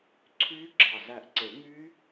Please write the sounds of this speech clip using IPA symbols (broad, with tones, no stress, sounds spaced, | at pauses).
ǀʰ yː˦˥ ɡ͡ǁ ɑ˧˩ z æ˧˩ ʔ ǀ e˨˩˦ ŋ yː˦˥